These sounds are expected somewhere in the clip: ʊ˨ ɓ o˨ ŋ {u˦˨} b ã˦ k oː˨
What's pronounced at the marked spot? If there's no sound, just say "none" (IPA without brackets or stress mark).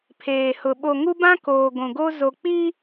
u˦